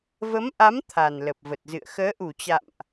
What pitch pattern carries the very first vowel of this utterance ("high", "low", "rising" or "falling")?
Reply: rising